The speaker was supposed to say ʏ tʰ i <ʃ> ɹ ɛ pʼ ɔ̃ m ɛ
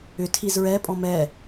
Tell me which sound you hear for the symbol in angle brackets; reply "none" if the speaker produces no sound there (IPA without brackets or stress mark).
z